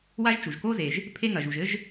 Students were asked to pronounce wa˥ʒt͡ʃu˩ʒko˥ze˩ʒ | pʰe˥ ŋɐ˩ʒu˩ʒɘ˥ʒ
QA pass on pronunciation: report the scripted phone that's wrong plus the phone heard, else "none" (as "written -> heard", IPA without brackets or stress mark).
none